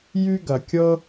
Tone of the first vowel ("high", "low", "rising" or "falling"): high